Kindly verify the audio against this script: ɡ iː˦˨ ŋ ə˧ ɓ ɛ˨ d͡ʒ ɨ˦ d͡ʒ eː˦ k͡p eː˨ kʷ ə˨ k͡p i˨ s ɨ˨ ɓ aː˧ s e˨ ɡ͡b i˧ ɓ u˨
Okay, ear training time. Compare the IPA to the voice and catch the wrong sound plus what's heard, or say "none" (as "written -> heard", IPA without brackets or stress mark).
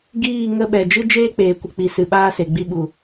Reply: none